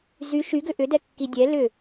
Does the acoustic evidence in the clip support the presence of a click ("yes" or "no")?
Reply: no